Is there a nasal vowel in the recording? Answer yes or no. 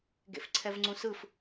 yes